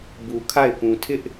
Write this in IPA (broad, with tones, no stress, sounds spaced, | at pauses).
b u˨ kʰ a˦˨ ɪ̯ p ũ˨ tʰ ɪ˦ ʔ